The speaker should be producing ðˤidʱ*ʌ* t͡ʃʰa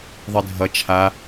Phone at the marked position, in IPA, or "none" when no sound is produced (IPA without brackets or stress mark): ʌ